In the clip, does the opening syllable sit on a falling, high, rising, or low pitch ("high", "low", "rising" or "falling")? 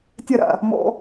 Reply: falling